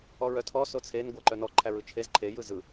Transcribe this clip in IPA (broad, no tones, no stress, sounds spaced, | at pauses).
ɔ ɹ œ tʰ ɔ s o t͡sʰ e n ɡʷ æ ǃ œ n ɔ ǃʰ æ ɹ ɯ t͡ʃʰ e z ǃʰ e j ɯ z ɯ